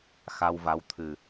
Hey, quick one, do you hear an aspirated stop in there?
yes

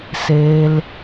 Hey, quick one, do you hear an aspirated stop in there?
no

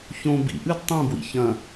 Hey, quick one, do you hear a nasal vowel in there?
yes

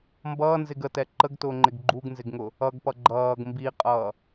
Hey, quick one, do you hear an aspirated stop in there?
no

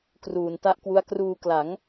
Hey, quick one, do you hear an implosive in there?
no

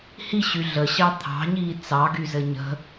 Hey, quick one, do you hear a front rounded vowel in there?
yes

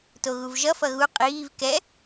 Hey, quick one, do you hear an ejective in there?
yes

